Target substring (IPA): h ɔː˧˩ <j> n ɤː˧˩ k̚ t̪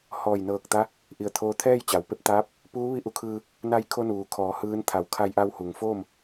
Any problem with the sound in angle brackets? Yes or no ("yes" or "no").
no